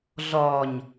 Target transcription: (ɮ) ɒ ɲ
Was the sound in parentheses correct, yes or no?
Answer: yes